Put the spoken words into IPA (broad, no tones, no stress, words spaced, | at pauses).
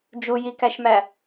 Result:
d͡ʒujikæʃmæ